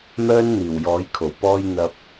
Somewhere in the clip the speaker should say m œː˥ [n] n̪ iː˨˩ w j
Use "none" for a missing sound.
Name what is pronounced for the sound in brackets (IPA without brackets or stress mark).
n